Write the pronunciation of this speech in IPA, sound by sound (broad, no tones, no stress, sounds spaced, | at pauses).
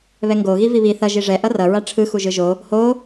β ɛ ŋ ɡ o ɣ i v i β i θ ʌ ʒ i ʐ ɛ ʔ ʌ r ʌ ɹ a ʈ͡ʂʰ ɯ x u ʒ ɯ ʒ o | h o